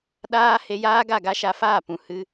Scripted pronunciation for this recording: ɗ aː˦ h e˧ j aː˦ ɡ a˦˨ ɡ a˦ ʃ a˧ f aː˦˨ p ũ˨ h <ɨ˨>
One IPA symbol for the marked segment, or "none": ɨ˧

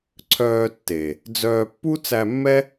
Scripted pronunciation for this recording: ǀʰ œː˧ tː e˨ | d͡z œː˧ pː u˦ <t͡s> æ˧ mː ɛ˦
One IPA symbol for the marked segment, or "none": t͡s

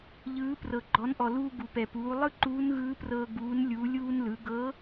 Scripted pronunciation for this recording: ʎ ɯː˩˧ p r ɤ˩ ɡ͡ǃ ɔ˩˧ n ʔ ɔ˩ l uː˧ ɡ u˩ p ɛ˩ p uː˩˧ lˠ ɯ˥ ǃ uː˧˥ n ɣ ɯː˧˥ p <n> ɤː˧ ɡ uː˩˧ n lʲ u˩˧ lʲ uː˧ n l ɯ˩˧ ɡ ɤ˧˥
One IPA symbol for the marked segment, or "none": r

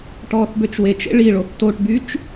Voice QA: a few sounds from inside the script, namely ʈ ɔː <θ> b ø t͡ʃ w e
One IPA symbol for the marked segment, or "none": θ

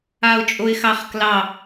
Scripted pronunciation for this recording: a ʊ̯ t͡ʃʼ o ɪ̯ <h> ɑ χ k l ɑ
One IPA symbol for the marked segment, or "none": x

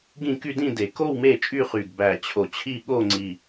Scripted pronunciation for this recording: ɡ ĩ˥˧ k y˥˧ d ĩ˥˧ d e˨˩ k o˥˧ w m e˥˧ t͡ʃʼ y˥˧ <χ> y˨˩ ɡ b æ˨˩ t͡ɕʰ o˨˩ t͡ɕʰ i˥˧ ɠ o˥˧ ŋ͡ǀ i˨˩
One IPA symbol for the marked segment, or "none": χ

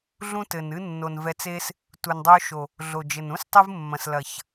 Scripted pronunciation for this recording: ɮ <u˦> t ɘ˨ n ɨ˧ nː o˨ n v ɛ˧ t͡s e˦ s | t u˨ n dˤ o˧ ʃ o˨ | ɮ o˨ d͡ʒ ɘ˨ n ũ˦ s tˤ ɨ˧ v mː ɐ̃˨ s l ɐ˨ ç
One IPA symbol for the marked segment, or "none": ũ˦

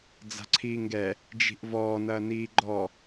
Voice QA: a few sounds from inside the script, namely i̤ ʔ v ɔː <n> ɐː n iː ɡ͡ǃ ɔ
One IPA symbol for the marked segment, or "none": n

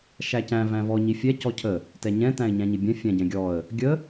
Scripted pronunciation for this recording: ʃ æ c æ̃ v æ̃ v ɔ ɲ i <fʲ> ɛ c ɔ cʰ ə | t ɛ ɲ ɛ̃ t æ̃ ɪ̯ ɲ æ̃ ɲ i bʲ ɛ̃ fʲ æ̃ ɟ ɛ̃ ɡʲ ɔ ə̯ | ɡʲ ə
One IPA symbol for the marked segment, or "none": fʲ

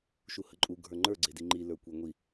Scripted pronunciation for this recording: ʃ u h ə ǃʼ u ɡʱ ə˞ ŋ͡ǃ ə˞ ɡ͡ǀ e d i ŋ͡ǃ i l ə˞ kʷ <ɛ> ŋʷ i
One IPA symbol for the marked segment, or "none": e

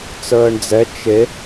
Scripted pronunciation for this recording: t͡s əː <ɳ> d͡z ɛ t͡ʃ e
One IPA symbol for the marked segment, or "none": ɳ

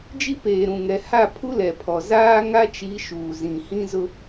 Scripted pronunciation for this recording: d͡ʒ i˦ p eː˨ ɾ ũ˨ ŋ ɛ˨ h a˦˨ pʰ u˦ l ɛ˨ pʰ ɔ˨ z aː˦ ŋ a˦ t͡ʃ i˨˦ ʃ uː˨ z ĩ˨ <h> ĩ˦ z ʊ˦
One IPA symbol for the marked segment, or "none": h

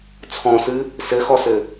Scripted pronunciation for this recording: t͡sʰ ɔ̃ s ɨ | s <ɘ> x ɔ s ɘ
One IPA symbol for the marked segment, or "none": ɘ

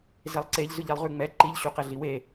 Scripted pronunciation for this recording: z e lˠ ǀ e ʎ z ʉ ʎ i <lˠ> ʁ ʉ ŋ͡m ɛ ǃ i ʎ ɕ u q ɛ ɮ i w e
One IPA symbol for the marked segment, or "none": lˠ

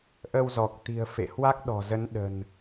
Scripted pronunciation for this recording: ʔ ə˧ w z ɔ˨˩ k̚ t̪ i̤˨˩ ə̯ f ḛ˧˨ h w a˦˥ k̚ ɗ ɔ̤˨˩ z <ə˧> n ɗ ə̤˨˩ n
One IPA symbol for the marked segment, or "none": ə˨˦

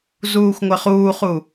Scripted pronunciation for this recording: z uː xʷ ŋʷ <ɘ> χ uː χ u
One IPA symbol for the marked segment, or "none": ɘ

